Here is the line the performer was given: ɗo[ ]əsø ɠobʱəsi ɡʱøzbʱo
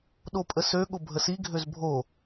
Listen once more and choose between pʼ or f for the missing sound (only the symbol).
pʼ